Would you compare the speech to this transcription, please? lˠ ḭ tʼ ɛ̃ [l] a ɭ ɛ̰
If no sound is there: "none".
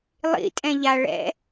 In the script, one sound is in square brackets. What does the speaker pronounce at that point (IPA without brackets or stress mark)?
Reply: ʎ